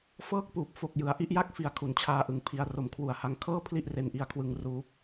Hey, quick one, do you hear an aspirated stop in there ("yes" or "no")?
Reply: yes